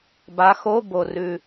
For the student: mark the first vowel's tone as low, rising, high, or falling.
rising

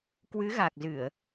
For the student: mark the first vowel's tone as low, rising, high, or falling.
rising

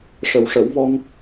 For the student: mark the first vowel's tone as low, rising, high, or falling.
low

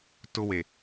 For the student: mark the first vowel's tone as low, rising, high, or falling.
high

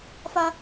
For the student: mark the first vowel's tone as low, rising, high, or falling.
high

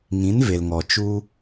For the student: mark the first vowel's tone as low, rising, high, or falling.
rising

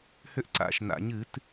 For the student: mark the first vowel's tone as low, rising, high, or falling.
high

